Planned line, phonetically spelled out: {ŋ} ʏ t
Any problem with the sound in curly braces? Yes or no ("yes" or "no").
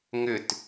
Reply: no